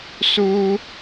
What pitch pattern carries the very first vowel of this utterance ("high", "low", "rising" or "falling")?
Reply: high